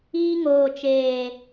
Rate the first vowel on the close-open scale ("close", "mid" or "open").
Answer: close